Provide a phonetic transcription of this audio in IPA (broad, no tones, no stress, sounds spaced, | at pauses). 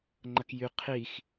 ŋ͡ǃ ɐ k j y qʰ i x